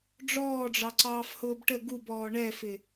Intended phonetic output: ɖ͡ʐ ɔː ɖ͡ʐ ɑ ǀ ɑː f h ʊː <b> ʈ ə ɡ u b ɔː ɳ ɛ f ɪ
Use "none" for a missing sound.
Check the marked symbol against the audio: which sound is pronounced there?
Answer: b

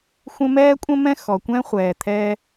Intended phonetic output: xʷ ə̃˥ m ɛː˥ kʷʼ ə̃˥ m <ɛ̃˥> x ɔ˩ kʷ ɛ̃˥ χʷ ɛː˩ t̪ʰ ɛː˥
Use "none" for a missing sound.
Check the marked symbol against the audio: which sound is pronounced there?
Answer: ɛ̃˥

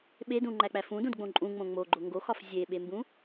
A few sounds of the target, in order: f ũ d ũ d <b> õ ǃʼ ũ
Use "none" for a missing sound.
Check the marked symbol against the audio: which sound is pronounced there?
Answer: ɡ͡b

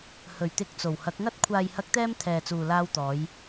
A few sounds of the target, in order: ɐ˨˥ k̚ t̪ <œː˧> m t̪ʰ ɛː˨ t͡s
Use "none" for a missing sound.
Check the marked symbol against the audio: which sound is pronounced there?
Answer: ɛː˧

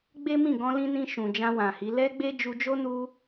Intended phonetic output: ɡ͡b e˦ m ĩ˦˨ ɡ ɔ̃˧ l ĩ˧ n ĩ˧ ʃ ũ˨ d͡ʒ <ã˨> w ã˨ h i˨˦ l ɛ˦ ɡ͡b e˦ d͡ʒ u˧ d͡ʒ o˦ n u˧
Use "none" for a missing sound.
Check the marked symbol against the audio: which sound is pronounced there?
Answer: ã˧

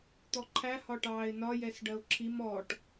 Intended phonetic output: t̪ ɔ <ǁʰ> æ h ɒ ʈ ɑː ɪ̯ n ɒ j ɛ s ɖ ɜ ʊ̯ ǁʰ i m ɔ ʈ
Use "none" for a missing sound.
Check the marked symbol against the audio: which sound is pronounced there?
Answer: ǃʰ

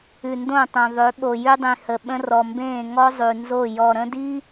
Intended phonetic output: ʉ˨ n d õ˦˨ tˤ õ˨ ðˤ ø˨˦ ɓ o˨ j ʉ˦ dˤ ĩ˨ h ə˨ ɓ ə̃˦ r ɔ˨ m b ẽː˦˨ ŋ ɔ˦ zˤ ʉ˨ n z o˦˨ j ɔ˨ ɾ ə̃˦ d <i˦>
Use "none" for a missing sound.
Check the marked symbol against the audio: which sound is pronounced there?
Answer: i˦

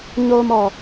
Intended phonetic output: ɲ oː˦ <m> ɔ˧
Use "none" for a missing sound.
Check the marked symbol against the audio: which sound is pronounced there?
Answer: m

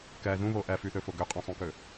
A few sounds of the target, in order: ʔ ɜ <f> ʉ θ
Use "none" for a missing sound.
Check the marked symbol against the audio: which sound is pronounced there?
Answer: f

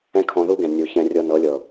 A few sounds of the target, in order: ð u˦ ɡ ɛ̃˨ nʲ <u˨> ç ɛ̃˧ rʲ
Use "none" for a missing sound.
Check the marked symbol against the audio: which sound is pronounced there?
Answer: u˨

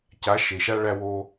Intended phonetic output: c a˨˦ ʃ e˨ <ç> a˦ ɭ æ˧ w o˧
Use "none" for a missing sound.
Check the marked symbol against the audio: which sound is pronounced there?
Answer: ʃ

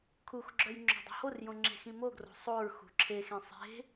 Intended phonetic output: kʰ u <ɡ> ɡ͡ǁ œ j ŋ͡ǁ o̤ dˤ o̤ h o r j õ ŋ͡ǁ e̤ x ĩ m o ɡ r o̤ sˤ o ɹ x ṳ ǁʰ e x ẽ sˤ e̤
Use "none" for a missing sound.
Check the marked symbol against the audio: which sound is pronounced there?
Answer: x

